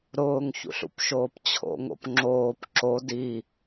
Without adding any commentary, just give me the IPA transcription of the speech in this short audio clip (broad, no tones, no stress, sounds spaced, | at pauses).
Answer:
ɾ ʊː ŋ ç ṵ ɬ ṵ p ʃ oː p t͡ɕʰ o̰ ŋ o̰ p ŋ͡ǁ oː p ǁ o d i